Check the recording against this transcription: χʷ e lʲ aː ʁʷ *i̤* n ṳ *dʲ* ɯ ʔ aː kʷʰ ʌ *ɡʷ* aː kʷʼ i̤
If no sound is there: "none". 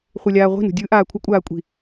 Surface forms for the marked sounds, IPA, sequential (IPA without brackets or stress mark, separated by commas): i̤, dʲ, kʷʼ